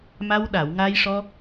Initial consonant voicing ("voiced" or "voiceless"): voiced